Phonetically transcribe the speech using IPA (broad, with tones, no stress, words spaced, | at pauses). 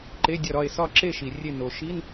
ǃe˧˥˧dʲɒ˦˨ɾɒ˦˨e̯ sɒ˦˨ǁe˦˨ʃi˩ rʲe˦˨ no˩ʃi˧˥˧n